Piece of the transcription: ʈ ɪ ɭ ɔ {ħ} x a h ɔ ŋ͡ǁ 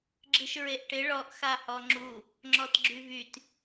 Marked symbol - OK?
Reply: no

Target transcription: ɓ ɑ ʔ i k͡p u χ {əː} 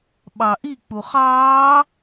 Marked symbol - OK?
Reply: no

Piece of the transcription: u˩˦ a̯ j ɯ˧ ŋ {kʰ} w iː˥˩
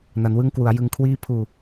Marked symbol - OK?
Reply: yes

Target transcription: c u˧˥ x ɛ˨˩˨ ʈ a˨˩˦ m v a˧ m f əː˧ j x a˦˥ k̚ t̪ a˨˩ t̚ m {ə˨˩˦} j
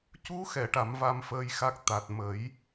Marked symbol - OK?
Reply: yes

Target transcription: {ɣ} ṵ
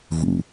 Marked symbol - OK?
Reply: yes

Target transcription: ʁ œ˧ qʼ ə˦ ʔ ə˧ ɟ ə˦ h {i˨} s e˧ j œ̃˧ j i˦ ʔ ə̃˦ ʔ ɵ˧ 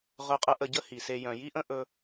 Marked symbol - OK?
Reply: yes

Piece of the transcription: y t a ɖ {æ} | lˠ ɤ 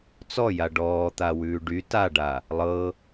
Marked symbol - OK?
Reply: no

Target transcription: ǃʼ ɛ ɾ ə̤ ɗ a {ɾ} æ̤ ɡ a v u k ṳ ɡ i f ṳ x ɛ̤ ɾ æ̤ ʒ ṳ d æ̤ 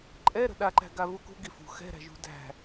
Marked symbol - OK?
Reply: no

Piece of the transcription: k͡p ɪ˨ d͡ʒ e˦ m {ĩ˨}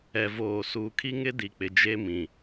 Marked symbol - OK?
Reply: yes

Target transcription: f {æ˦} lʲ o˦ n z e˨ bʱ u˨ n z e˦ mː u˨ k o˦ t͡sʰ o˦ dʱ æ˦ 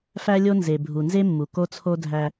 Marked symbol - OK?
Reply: yes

